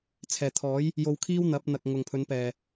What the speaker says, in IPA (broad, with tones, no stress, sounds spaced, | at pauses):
t͡sʰ ɛː˨˩ t̪ʰ ɔː˨˥ j | j o˧ w kʰ iː˥ w n̪ ɐ˨˥ p̚ n̪ ɐ˨ k̚ ŋ ʊ˨ ŋ pʰ ɵ˨˥ n p ɛː˨